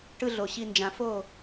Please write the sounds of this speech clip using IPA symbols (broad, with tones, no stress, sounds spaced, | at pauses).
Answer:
ʈ ɯ˦ ɮ o˨ ɕ i˧ n d͡ʒ ã˨ f o˦˨